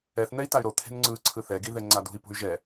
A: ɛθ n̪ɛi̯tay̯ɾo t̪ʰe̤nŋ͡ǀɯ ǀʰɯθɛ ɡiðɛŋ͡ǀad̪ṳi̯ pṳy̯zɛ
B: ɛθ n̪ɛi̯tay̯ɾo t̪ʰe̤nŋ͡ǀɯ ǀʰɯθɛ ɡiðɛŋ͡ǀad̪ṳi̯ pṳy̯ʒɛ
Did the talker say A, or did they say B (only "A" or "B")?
B